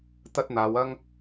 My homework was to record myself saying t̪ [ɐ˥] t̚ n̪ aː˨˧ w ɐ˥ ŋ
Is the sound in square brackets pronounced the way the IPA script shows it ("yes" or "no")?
yes